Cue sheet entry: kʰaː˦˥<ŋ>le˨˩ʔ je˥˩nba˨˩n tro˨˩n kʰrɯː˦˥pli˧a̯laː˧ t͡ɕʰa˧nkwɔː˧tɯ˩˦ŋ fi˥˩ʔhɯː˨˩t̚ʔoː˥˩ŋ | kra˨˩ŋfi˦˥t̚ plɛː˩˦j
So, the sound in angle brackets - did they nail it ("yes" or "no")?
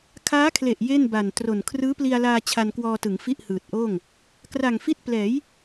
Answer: no